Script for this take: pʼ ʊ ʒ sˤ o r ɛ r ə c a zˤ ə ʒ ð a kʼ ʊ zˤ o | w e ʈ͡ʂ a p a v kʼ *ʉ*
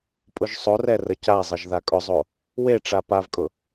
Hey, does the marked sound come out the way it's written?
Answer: no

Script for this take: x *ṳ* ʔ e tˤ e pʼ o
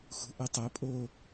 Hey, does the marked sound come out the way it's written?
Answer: yes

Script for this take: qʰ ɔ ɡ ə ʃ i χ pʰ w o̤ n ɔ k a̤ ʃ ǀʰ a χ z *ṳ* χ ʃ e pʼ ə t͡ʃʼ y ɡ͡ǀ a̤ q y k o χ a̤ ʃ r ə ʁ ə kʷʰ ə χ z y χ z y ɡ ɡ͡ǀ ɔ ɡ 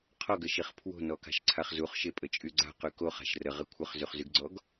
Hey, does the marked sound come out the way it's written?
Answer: no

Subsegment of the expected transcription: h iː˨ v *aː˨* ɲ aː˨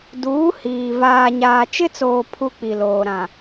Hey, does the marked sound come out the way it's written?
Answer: yes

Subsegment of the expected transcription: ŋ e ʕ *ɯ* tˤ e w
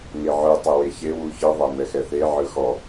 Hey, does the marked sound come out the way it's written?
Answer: yes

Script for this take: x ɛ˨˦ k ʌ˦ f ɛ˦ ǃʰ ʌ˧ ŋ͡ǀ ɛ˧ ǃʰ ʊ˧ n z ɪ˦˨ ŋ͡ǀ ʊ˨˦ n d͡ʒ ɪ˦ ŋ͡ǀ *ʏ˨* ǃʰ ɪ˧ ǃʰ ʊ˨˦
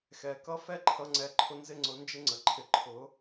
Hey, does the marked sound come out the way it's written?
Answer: no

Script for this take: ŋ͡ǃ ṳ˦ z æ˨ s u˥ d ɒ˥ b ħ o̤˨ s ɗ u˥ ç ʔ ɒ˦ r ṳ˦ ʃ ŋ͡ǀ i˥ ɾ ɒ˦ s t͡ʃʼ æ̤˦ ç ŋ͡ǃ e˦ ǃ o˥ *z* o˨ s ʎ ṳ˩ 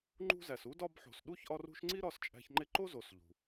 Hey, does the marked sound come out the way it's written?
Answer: yes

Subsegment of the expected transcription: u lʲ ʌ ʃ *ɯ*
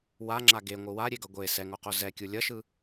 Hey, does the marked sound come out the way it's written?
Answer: yes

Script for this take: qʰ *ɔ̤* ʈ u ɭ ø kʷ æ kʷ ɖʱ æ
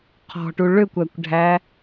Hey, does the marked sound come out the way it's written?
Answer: yes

